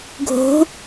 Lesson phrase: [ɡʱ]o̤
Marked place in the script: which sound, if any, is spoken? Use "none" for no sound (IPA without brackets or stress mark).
ɡʱ